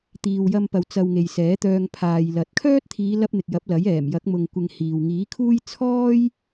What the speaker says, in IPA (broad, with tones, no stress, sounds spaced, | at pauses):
t̪ iː˨ w j ɐ˧ m p ɐ˨ w t͡s ɐ˧ w ŋ e˨ j s ɛː˨˥ t̪ œː˧ ŋ pʰ aː˨ j l ɐ˨˥ t̚ kʰ œː˥ t̚ t̪ʰ iː˨˧ l ɐ˧ p̚ n̪ ɪ˨ k̚ j ɐ˨˥ p̚ l ɐ˨˥ j ɛː˨˩ m j ɐ˨˥ k̚ m ʊ˨ ŋ kʷ ɪ˨ ŋ h iː˨ w ŋ iː˨˥ kʰ uː˥ j t͡sʰ ɔː˥ j